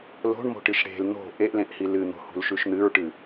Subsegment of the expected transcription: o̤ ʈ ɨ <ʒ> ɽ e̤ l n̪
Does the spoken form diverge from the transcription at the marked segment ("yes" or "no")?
yes